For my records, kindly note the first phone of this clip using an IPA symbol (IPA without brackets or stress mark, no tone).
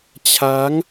t͡ɕʰ